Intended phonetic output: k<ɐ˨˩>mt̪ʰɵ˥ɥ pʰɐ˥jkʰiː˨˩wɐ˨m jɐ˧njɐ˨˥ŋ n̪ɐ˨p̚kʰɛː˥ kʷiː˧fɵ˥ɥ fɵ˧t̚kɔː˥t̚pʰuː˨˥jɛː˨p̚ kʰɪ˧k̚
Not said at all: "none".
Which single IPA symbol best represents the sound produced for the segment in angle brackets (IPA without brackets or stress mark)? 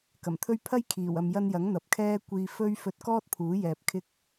ɐ˨˩